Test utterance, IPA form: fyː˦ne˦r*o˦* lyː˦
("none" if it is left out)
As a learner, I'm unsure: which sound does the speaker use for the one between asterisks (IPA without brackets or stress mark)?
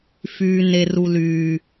u˦